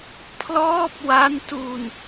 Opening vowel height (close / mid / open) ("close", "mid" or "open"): mid